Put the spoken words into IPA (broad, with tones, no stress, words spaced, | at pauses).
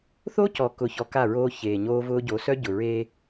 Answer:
θo˦ cɔ˨ kʊ˨çɔ˨ ka˦˨ɹoː˦ çeː˨ɲoː˦vʊː˦ ɟo˨˦ sœ˦ ɟʊ˨ɹeː˦